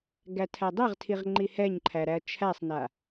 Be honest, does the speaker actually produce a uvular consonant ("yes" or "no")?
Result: yes